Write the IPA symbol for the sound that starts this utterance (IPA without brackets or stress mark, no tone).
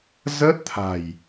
z